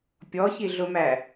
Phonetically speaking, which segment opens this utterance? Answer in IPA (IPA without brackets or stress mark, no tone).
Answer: pʲ